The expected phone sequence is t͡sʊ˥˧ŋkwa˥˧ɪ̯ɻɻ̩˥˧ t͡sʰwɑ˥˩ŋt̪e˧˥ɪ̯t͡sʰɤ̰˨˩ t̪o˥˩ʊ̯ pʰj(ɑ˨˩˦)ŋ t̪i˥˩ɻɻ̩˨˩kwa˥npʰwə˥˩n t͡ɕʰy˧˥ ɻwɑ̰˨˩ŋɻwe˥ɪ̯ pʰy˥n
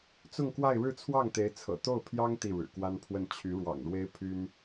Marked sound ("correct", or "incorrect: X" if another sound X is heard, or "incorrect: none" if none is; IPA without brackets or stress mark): incorrect: ɑ˥